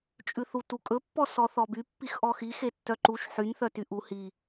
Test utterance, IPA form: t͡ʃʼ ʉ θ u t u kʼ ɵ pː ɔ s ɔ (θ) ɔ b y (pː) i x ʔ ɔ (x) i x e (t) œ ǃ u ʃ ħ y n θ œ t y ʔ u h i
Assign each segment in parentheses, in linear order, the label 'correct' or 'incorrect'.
correct, correct, correct, incorrect: tː

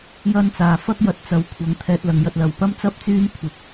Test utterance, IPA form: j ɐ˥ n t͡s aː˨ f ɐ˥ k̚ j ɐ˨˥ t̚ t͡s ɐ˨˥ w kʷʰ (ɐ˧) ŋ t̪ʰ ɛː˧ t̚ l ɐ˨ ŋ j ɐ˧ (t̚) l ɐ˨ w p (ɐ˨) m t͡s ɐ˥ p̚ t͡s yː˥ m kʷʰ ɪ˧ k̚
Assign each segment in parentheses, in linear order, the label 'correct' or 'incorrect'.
incorrect: ɐ˨˥, correct, incorrect: ɐ˥

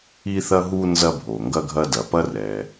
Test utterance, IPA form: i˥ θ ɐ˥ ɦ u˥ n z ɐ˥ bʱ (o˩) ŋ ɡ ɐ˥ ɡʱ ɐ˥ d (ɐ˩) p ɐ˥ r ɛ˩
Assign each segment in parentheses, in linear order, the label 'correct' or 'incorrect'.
correct, correct

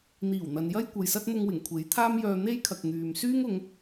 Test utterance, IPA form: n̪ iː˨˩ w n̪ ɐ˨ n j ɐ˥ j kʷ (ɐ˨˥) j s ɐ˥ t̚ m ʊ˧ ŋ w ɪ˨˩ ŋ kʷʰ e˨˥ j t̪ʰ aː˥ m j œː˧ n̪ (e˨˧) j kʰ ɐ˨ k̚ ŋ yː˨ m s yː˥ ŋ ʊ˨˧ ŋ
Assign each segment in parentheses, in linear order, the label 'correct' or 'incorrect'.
incorrect: ɐ˨, incorrect: e˥

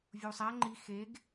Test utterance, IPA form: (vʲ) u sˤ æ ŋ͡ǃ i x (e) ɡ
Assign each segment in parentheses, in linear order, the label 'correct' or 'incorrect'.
correct, correct

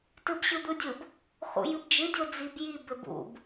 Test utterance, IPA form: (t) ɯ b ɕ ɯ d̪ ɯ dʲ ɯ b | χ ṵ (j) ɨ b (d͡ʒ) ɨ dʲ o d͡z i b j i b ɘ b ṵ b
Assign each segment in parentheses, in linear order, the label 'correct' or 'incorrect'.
correct, correct, correct

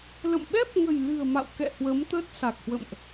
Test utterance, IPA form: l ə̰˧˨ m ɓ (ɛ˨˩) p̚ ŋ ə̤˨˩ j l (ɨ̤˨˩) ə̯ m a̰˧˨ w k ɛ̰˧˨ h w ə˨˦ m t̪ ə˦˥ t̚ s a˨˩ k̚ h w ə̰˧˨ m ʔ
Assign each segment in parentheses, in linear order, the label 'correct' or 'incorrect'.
incorrect: ɛ˦˥, correct

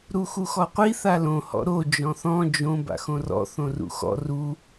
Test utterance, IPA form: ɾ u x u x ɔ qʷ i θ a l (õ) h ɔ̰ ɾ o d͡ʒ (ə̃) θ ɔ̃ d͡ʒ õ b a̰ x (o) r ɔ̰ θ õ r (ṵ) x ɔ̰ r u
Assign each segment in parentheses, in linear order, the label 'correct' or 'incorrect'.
correct, incorrect: ɔ̃, incorrect: õ, correct

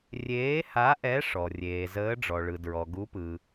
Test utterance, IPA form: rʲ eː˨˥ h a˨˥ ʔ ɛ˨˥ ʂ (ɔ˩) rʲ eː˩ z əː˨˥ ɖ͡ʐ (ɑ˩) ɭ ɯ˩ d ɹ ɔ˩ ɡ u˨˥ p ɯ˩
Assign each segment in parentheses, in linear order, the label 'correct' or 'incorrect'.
correct, incorrect: ɔ˩

